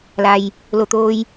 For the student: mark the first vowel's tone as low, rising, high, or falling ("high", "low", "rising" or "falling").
low